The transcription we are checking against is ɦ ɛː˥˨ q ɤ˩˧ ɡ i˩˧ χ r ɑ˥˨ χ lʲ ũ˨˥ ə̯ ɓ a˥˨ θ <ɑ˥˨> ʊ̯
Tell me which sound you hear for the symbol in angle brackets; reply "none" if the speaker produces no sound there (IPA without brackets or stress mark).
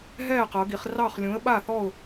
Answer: ɔ˥˨